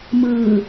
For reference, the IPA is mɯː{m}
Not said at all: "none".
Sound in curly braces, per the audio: none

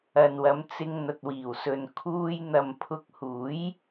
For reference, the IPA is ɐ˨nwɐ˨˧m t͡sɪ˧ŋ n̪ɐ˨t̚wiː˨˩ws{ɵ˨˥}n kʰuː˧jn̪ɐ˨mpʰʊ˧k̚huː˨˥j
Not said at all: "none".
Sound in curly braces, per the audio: ɵ˨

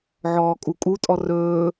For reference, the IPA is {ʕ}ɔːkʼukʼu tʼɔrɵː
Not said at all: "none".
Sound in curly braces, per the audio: ʕ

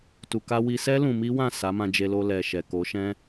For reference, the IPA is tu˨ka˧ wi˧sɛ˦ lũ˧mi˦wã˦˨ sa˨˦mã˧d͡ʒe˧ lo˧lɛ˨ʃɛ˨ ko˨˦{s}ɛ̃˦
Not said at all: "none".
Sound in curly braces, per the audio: ʃ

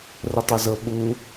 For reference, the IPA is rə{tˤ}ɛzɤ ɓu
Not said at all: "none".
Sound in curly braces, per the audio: tˤ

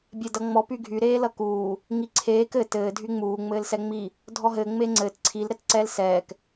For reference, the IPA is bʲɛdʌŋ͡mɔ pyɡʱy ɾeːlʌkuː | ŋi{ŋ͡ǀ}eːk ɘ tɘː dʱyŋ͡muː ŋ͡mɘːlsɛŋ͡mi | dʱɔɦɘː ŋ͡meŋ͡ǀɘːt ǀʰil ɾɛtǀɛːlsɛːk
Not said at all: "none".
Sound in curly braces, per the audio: ǀʰ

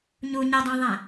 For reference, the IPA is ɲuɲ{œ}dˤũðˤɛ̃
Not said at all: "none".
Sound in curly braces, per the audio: ɛ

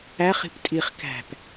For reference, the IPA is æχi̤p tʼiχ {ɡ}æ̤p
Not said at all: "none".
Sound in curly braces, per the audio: k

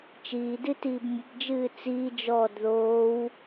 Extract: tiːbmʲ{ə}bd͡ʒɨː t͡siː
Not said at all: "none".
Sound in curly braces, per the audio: ə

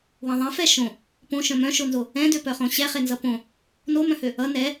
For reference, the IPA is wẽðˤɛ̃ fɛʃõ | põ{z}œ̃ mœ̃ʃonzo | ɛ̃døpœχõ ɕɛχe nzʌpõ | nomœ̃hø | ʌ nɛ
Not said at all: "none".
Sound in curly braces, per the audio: ʃ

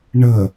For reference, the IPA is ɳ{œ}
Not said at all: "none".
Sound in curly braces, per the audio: ə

